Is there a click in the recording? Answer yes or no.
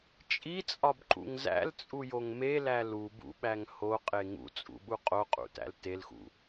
yes